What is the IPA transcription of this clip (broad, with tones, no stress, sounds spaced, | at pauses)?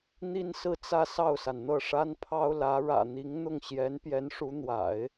n̪ i˥ n s ɹ̩˥˧ t͡s ä˥˧ s ɑ˥˩ ʊ̯ s a˩ n n̪ ɤ˥˩ ʂ a˥ n pʰ ɑ˥ ʊ̯ l ä˧˥ ɻ ä̰˨˩ n̪ i˧˥ ŋ n̪ ʊ˥˩ ŋ ɕ j ɛ˧˥ n p j ɛ˧˥ n ʂ u˧˥ n̪ w a̰˨˩˦ ɪ̯